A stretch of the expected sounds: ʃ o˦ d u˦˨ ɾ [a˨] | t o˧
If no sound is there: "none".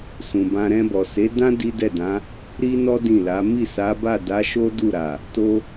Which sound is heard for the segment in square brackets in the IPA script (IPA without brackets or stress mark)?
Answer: a˨